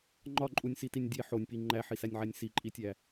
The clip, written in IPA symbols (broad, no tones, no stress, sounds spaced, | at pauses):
ŋ͡ǃ ɒ ǃʼ u nʲ s i t i nʲ dʲ e ħ o nʲ p i ŋ͡ǃ æ ħ i s æ nʲ ʕ æ nʲ s i ǃʼ i tʲ æ